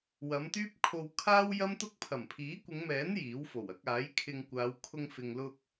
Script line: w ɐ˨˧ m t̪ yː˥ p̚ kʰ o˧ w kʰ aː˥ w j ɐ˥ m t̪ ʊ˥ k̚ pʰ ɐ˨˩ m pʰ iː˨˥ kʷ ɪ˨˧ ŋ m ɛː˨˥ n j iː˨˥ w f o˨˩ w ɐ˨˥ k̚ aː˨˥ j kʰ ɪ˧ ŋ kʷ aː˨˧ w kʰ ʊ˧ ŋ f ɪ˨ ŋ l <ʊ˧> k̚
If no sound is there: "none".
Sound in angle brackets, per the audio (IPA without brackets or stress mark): ʊ˧